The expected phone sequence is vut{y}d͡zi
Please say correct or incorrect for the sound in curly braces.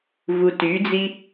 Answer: correct